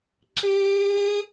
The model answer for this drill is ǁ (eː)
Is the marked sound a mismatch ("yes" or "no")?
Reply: no